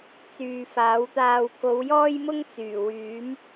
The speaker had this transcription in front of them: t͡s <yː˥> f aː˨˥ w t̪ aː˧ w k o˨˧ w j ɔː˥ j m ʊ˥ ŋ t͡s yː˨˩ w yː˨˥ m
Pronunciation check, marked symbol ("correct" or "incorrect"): incorrect